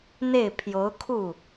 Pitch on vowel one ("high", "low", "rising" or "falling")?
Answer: falling